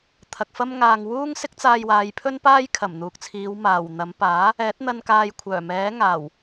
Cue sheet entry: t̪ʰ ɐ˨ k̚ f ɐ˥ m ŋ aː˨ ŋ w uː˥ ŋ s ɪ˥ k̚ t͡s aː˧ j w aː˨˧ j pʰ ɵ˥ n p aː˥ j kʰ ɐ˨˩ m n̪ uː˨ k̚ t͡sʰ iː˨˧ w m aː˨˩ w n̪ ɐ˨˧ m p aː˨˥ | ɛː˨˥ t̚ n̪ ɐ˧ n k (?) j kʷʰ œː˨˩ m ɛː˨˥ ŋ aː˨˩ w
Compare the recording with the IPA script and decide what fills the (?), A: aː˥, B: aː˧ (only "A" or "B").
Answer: B